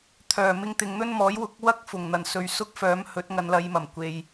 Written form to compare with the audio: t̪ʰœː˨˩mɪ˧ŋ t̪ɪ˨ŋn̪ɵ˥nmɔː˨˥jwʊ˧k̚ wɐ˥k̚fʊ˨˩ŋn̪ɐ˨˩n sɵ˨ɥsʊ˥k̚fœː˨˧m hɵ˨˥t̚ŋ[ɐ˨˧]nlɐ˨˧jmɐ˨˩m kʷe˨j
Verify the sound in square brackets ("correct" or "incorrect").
correct